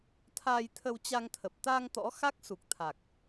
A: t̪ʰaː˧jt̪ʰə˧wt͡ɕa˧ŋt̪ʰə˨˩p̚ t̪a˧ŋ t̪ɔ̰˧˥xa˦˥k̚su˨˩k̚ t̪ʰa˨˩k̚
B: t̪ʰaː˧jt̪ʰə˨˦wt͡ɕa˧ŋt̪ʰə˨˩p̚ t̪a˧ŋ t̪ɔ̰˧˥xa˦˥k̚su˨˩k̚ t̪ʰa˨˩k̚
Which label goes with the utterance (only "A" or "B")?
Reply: A